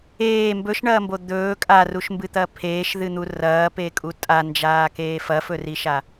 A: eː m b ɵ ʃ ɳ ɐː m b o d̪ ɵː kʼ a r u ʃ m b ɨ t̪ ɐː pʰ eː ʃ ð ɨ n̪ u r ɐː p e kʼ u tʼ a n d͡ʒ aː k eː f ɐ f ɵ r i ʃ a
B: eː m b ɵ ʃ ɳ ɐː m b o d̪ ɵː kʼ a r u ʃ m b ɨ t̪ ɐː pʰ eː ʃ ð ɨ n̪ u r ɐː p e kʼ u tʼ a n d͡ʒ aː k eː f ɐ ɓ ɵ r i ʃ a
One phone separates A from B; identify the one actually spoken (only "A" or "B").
A